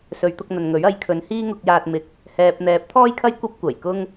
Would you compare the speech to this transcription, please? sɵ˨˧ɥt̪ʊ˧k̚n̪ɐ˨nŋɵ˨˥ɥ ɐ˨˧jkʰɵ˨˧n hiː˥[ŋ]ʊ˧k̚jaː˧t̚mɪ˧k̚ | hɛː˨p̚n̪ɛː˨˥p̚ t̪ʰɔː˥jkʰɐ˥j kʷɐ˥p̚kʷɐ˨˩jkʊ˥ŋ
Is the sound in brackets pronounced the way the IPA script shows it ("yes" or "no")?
yes